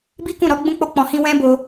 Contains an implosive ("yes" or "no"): no